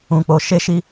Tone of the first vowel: low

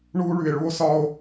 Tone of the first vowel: high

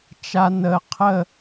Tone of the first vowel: high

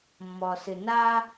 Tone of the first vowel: low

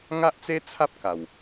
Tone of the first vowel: high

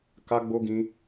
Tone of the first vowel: high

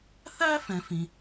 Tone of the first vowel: high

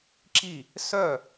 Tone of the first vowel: falling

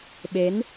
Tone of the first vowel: rising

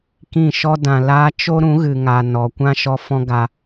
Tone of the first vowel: falling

